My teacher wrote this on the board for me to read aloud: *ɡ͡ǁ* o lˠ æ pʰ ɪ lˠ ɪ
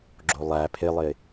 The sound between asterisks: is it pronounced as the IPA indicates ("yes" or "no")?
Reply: yes